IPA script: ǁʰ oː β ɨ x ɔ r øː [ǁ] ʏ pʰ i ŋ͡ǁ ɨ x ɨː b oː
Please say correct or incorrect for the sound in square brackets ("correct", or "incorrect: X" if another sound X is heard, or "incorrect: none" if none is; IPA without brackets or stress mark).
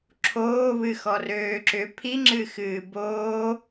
correct